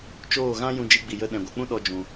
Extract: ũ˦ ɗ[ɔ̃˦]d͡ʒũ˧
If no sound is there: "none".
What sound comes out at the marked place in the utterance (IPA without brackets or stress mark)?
ɔ˦